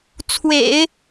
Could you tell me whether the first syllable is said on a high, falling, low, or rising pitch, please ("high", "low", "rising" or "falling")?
low